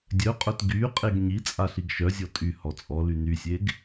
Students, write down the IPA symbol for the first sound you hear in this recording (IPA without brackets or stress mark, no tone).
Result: dʲ